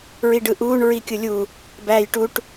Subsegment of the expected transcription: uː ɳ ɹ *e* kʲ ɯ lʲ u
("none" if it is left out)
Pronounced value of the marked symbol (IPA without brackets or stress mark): i